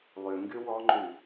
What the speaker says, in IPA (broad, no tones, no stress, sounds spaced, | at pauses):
lˠ y ŋ ɡ y w ɔ ŋ͡ǃ y